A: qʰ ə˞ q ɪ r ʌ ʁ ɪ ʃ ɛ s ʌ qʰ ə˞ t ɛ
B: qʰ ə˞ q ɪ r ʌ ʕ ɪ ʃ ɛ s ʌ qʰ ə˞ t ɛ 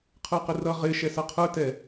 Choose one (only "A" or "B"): A